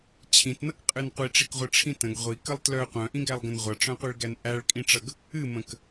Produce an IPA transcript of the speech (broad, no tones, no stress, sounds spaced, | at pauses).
t͡ɕʰ ĩ t n ʌ k qʼ ɨ n qʷ i ʈ͡ʂ i k ʁʷ ɨ ʈ͡ʂʰ ĩ t ə̃ ɡ ʁʷ i k ə lˠ t l œ qʷ œ̃ ʔ ĩ ɡ æ lˠ ɡ ə̃ n ʁʷ ʌ ʈ͡ʂ œ̃ qʷ i ɭ ɡ æ n ʔ æ ɭ kʼ ĩ ʈ͡ʂ ʌ ɡ | ɨ m ə̃ k